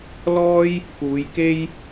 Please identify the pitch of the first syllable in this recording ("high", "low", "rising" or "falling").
high